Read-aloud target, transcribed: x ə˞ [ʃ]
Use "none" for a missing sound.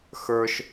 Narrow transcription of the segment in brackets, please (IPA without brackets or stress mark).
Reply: ʃ